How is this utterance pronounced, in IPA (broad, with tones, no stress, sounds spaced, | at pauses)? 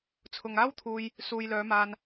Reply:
t͡sʰ ʊ˨ ŋ aː˥ w t̪ʰ uː˧ j | s uː˨ j l œː˨˧ m aː˧ n